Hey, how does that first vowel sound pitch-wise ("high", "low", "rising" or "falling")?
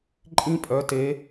rising